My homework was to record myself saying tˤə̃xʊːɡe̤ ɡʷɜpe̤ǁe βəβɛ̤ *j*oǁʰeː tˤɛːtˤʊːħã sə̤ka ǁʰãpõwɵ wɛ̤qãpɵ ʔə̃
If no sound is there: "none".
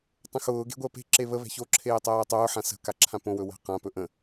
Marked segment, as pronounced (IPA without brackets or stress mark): ç